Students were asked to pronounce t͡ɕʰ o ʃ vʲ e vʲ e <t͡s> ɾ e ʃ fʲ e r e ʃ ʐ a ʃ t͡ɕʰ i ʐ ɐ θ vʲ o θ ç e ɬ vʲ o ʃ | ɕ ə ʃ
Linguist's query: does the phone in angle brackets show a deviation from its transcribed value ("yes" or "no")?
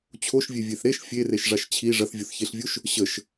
yes